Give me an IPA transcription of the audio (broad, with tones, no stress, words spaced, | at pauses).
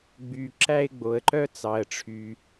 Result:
ɡ͡by˩ǁæ˥ɪ̯ ɡ͡bo˩ə̯ǃœ˥t͡sɑ˩ə̯ʈ͡ʂʰy˩